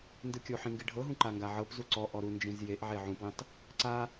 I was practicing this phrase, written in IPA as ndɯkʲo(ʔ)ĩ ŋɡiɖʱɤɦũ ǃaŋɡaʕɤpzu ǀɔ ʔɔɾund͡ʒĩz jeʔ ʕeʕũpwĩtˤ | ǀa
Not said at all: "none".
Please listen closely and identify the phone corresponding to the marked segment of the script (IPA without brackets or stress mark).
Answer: ħ